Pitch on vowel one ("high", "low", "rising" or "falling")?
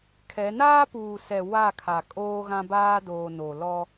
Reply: rising